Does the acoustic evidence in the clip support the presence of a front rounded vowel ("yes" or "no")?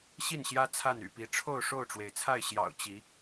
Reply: yes